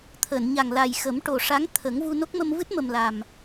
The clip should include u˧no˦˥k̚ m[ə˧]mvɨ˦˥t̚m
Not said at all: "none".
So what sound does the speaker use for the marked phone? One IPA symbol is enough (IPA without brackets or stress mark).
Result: ə˧